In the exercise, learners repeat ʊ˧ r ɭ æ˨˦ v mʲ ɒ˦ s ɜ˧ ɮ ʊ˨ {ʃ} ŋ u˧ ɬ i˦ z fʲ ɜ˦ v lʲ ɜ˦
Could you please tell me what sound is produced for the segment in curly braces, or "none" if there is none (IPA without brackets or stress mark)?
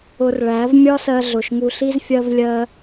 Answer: ʃ